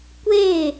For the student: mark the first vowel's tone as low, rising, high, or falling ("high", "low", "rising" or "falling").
falling